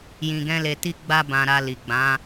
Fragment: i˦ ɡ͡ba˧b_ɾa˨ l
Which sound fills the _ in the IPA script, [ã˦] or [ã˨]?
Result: ã˨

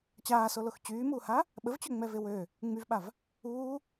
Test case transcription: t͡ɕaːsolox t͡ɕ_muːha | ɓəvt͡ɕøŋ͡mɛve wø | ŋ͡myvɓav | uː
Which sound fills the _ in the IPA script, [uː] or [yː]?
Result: yː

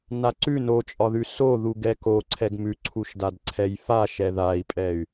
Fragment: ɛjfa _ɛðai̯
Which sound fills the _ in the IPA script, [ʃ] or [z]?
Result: ʃ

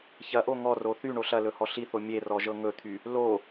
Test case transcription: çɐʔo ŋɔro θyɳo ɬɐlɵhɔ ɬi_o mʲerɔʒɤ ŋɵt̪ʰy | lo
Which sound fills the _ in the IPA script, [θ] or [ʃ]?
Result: θ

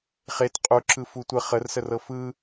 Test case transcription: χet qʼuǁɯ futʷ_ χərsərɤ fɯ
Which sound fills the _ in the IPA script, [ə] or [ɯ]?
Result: ə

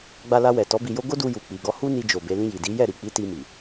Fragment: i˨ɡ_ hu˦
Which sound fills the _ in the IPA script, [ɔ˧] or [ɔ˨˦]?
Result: ɔ˧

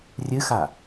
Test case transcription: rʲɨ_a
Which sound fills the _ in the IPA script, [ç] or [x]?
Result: x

